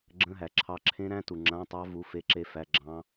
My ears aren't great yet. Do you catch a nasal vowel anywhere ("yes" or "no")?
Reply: yes